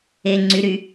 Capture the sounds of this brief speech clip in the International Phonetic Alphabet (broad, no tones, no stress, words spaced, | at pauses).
e ŋ͡ǀy ɾy